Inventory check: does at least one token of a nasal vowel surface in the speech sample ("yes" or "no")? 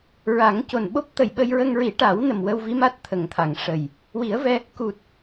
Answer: no